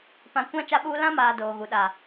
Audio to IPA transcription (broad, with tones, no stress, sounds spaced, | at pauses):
p ã˨ kʷ ã˦ t͡ʃ a˦ ɓ uː˦ l ã˦ m aː˨ d oː˨ ɣ u˨ ɗ a˨